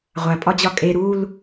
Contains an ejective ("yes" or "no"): yes